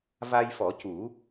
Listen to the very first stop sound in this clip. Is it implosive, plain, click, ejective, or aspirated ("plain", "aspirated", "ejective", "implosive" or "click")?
plain